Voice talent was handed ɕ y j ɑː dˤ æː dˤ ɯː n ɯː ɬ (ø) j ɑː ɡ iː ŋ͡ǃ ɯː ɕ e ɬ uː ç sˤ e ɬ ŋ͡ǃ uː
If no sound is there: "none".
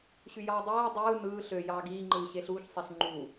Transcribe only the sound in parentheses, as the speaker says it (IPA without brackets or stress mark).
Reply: ø